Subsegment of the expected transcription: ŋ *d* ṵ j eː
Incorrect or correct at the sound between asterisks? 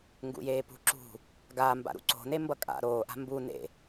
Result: incorrect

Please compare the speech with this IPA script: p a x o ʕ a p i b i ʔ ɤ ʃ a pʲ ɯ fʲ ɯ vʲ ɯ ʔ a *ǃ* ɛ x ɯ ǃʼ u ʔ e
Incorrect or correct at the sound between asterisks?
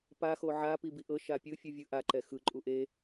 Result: correct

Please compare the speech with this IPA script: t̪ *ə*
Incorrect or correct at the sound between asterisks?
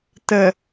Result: correct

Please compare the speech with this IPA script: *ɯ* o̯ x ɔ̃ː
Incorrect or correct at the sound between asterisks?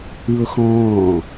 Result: correct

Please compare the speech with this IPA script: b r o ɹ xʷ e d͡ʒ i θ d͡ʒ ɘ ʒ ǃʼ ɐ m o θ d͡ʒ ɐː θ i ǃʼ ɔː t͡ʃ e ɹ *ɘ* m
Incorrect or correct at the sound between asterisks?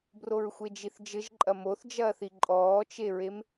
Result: incorrect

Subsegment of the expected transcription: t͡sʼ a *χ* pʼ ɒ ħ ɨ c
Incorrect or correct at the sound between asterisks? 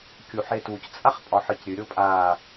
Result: correct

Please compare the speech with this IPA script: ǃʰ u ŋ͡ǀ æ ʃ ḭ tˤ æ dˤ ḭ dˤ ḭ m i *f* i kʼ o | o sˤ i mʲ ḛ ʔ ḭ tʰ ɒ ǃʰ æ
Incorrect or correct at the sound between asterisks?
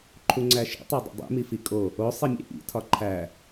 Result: correct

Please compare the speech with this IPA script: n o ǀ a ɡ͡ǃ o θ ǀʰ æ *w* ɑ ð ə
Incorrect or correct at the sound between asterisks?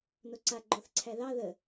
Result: incorrect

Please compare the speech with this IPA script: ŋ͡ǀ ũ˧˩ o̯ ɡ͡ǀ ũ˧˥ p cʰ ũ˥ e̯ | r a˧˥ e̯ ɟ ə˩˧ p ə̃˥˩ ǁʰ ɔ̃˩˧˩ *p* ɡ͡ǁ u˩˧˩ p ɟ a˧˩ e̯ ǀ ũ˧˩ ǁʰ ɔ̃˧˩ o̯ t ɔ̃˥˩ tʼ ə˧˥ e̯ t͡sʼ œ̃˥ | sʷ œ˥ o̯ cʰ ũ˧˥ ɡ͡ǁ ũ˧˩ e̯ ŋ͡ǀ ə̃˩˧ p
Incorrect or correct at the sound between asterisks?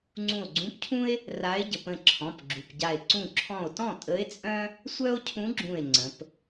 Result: correct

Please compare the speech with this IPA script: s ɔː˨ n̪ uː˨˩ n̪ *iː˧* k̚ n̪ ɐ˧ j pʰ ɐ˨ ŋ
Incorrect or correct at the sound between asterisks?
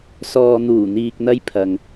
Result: incorrect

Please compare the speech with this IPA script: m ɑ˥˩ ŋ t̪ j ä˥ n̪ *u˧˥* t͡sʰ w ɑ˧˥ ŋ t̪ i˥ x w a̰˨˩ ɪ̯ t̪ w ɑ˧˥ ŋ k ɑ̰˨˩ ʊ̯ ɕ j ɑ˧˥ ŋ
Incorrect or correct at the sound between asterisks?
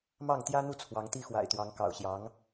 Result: incorrect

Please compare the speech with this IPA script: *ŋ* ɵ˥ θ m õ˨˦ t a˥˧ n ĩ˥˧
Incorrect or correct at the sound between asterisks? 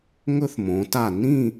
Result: correct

